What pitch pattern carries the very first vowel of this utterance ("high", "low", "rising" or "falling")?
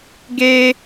high